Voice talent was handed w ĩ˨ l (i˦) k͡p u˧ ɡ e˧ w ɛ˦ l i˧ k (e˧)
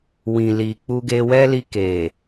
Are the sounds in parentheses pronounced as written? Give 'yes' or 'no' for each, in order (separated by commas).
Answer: no, no